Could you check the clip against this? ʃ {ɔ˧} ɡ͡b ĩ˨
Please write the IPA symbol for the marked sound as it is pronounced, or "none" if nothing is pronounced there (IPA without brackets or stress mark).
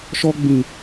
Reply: ɔ˧